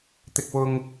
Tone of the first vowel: high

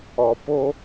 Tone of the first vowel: low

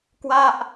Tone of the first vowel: falling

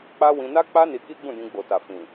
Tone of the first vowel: high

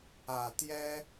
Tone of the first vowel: low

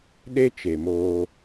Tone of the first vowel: high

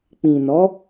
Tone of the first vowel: low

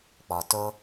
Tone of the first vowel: low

